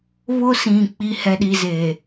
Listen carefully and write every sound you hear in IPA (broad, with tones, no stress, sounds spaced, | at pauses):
β ʊ˦ s ĩ˨ k͡p i˦ h ɛ˦ ɗ i˦ z eː˨